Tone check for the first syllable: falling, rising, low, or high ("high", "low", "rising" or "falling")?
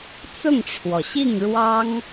falling